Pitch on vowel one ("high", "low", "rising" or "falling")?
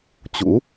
rising